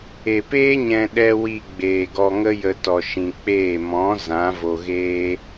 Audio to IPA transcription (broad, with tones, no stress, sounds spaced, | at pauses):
e˨ p eː˦ ɲ ɛ̃˧ ɗ ɛ˧ w i˧ ɡ͡b eː˨ ɡ ɔ˧ ŋ ə˦ j ə˧ t ɔ˧ ʃ ĩ˧ k͡p eː˦˨ m ɔ̃˨˦ z ã˨˦ v o˧ ɣ eː˦